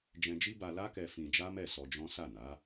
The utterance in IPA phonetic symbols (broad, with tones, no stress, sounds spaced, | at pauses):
d͡ʒ ɛ̃˧ d͡ʒ i˦ b a˧ l a˦ k ɛ˧ f ĩ˧ d͡ʒ a˦ m ɛ˦˨ s ɔ˧ d͡ʒ ɔ̃˦ s a˦˨ n a˨˦